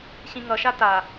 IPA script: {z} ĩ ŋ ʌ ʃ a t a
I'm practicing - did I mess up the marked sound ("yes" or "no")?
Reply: yes